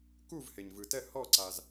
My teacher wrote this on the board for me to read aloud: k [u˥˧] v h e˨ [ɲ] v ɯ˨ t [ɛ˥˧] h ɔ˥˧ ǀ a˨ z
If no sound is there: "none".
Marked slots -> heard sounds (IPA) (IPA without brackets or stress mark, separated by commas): u˥˧, ɲ, ɛ˥˧